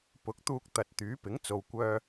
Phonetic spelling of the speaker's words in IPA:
pʊ˨˥k̚t̪uː˧k̚ t̪ɐ˨t̚ t̪yː˨˥pɪ˨˥ŋ t͡so˨wkʷœː˧

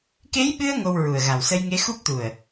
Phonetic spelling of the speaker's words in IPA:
ke˧˥jɓɨ˧ə̯ ŋo˧wɹu˨˩ə̯ɣa˨˩w sə˧jŋe˧˥xu˦˥p̚t̪u˨˩ə̯

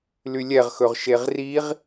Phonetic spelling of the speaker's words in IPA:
lylʲɛʁxɵʁ ʃeʁriʁ

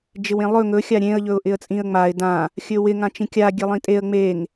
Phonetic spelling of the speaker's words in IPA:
d͡ʒɪwẽlˠɵ ŋɵ xʲaɾʲẽə̯ ʎɵʊ̯ʔɪə̯t͡sʼĩə̯ŋ͡maɪ̯ dã | xʲɵwɪ ŋãt͡ʃĩkʲa ɡʲelˠĩtʼeə̯ ŋ͡meŋ

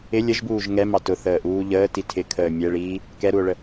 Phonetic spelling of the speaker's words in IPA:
ɪ lʲəʒbuːʒ ŋɛmɑ tʊθəːʔuː ʎəːti tʰɪkʰəː mʲɛɭiː | kɛɾuo̯ɭə

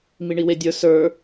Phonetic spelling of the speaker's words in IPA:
miɳiwedʲə˞ sə˞

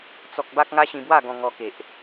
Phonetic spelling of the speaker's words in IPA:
t͡sɔ˦k̚ ba˦k̚ŋa˦ ɕĩ˧bwa˥˧ ɡɔ̃˧ ŋɔ˧ke˨ʔ

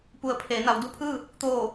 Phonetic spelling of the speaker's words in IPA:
pu˩˧ə̯ pʰeː˩˧na˩˧w du˧pʰɯː˥˨ | t̪oː˧˩

